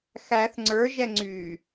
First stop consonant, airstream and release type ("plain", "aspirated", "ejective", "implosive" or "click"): click